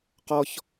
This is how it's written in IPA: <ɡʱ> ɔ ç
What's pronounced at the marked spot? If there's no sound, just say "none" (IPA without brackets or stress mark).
q